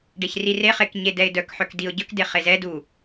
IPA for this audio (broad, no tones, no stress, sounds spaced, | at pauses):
ɖ e ç r i r e χ e k ɲ e d ɛ ɪ̯ d œ k ħ œ k d i ʊ̯ ɟ œ k d e χ e z ɛ d u